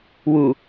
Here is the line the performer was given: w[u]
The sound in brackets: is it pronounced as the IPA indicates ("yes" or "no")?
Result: yes